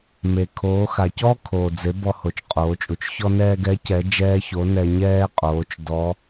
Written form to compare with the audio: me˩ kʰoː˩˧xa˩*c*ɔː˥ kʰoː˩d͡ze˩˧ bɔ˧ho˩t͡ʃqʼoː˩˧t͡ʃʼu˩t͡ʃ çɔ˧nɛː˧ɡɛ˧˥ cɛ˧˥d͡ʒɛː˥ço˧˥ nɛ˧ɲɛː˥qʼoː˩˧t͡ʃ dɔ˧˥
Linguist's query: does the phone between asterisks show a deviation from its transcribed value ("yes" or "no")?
no